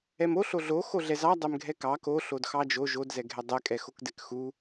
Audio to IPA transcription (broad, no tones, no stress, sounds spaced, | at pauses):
ɛ m o ɬ o ɮ o x o ɮ ɛ z ɑ dˤ ɛ m ɡʱ ɛ k ɑ k o ɬ o d x ɑ d͡ʒ o ʒ o d z ɛ ɡʱ ɛ dˤ ɛ kʼ ɛ x o k d ɛ k x u